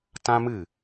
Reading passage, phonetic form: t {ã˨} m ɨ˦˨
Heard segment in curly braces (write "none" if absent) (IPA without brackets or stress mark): ã˦